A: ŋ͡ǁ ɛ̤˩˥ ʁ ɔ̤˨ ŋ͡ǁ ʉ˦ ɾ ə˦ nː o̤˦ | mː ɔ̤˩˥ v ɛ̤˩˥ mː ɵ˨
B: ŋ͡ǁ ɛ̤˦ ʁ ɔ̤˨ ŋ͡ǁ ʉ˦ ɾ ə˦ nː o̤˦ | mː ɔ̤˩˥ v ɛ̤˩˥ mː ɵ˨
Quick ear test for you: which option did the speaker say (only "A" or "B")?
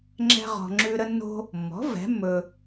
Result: B